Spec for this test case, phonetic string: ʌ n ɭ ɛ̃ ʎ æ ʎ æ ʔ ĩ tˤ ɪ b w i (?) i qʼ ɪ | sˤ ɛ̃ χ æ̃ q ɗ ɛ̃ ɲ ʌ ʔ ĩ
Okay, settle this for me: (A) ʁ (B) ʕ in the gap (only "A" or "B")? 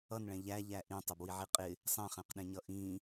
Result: B